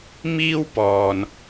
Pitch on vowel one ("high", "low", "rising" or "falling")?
high